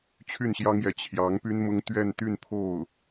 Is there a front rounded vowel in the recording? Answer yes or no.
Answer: yes